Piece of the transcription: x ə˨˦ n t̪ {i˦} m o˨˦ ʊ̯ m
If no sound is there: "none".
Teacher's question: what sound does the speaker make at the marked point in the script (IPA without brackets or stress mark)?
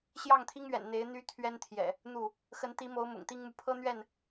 i˨˦